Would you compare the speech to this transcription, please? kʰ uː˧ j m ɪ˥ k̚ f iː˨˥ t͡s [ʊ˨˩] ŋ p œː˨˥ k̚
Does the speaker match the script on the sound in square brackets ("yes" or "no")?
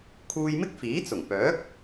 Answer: yes